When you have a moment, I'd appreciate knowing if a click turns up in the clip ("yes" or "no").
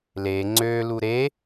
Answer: yes